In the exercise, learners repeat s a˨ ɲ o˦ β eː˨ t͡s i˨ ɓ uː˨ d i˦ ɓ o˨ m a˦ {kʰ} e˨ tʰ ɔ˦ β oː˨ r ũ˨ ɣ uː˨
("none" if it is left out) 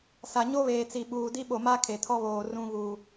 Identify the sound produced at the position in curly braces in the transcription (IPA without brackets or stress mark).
kʰ